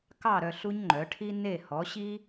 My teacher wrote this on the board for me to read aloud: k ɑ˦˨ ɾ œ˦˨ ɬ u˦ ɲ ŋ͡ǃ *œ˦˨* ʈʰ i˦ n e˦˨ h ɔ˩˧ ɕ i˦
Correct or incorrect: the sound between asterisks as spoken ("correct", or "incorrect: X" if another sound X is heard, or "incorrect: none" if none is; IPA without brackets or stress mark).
incorrect: œ˩˧